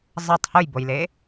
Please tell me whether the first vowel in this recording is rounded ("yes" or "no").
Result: no